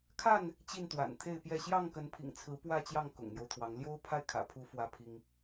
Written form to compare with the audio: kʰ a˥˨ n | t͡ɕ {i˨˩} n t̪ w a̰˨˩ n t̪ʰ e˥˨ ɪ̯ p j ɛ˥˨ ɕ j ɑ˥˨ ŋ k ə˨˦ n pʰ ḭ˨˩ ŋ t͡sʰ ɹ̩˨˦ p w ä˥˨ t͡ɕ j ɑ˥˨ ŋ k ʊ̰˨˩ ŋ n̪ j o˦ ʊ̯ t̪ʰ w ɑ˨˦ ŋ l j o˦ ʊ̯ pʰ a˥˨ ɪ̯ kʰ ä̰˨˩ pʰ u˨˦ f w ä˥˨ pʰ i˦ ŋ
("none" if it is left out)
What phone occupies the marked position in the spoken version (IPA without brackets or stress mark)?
i˥˨